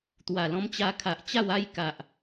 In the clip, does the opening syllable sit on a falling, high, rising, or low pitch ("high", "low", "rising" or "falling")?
low